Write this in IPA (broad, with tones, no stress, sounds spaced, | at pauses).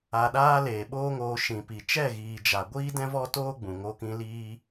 a˨ ɗ aː˧ l eː˨ ɓ oː˦ ŋ oː˧ ʃ ĩ˨ p i˨ t͡ʃ ɛ˦˨ ɣ iː˨ d͡ʒ a˨ ɡʷ iː˦ d ɛ̃˦ v ɔ˦ t oː˦ ɡ͡b ũ˨ ŋ o˧ k ĩ˧ l iː˦